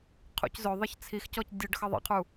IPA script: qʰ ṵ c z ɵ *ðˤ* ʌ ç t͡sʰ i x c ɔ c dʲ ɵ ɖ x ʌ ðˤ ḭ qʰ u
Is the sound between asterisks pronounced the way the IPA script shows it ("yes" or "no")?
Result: yes